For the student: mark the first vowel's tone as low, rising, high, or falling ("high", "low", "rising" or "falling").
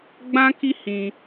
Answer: high